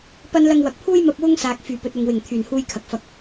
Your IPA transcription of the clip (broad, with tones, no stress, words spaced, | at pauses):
pɐ˥n lɐ˧ŋwɐ˨k̚pʰuː˥jmɐ˧p̚ wʊ˥ŋsaː˨k̚ fyː˨˩pɵ˨t̚ ʊ˨ŋwɪ˨˩ŋ t̪ʰyː˨˩nhuː˧jkʰɐ˨k̚ fɐ˧k̚